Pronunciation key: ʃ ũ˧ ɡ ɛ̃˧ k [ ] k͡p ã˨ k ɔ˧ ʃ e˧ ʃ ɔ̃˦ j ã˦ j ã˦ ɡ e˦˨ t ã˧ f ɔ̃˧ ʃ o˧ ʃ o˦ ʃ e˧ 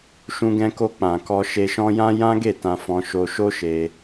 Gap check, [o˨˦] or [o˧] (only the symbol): o˧